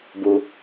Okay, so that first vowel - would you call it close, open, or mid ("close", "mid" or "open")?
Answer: close